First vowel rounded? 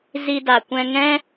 no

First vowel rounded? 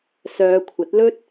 yes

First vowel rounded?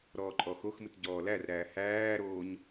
yes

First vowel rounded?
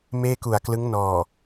no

